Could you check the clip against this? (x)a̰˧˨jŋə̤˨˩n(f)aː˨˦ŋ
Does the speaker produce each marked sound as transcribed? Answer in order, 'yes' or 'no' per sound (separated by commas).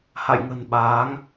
no, no